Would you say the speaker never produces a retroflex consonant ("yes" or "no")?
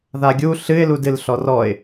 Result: yes